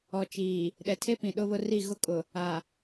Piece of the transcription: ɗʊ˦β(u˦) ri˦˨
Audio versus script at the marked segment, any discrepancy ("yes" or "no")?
yes